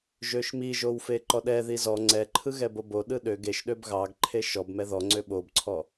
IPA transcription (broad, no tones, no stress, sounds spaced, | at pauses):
ʒ ø ʃ m i ʒ o w f e ǃ ɔ ɗ ɛ ð i z ɔ ŋ͡ǀ ɛ ǃʰ ɯ ɣ ɛ b o b o ɗ ɯ ɗ ø ɡ e ʃ ɗ ø b ɣ ɑ ɡ ǃʰ e ʃ ɔ b m ɛ ð ɔ ŋ͡ǀ ø ɓ o b ǀʰ ɔ